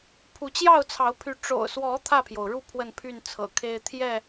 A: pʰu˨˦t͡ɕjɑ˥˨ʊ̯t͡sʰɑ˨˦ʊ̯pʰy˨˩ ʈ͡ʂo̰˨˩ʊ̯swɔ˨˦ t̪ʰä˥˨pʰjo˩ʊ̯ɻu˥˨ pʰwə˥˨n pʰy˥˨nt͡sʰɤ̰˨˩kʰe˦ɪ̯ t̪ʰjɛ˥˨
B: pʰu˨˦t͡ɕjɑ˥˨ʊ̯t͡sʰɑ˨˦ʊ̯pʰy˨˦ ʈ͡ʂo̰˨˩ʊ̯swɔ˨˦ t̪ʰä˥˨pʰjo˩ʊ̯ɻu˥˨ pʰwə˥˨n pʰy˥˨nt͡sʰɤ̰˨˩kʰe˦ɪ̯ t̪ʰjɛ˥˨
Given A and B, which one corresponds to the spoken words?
B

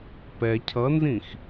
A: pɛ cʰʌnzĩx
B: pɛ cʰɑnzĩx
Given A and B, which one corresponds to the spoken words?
A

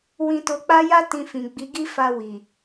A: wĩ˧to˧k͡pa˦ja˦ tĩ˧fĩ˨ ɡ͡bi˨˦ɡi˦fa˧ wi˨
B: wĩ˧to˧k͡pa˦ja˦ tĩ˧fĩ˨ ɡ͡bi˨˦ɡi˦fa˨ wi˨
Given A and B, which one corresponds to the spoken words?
A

